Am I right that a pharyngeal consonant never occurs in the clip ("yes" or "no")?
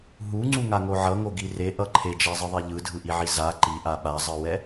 no